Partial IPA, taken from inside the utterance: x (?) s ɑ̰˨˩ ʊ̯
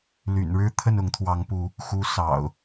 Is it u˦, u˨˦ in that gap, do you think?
u˨˦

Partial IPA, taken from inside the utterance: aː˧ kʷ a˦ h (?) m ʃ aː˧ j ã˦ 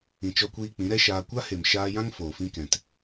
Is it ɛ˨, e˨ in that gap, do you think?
e˨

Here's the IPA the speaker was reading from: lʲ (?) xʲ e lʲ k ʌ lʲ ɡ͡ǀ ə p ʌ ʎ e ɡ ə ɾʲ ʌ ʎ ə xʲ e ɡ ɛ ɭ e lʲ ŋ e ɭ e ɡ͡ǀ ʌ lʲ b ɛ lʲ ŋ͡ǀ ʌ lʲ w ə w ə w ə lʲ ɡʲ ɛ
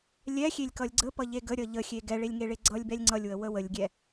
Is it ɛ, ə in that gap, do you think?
ɛ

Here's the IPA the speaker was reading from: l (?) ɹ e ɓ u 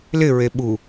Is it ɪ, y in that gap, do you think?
ɪ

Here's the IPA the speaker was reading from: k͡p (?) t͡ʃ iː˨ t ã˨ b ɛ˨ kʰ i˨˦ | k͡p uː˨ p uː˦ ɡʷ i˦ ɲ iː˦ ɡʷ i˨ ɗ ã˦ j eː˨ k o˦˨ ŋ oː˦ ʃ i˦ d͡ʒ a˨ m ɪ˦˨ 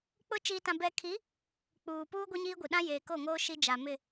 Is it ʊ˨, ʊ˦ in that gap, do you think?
ʊ˦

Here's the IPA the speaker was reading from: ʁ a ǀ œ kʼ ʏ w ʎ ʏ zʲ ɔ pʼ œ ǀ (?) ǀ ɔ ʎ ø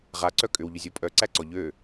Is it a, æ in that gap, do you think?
æ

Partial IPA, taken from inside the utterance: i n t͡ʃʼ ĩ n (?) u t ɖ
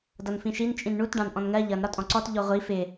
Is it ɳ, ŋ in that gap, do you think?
ɳ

